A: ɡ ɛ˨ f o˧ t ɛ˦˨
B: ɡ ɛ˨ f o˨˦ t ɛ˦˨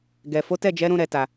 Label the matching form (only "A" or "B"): B